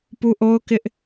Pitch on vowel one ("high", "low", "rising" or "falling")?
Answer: high